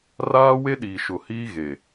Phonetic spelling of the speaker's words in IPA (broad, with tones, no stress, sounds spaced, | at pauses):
r aː˦ w e˦ ɗ iː˨ ʃ ʊ˨ h iː˦ ɣ e˨